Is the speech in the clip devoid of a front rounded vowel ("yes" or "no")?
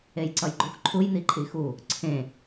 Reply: yes